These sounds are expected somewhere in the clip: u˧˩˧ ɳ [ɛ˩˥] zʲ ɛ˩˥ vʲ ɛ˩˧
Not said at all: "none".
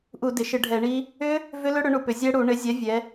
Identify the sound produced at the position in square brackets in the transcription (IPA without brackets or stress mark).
ɪ˩˥